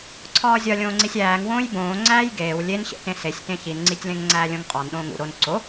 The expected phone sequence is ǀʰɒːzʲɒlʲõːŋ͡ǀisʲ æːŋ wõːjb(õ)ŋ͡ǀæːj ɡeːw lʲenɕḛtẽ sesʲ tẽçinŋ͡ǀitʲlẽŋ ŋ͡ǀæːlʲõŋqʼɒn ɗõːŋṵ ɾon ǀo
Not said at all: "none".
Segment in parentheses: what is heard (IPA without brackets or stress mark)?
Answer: õː